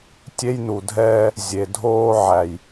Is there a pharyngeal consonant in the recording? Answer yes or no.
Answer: yes